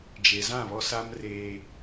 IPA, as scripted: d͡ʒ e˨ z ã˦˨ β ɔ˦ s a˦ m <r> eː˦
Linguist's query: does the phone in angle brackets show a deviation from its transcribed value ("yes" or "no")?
no